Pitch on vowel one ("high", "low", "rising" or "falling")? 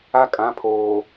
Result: high